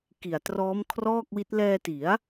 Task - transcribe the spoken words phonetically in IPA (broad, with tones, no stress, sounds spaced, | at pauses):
k i˨˩ a̯ t r ɔː˦˥ m kʰ r ɔː˥˩ k̚ w i˦˥ t̚ l ɛː˧ t i˩˦ a̯